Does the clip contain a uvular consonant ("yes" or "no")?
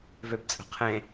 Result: yes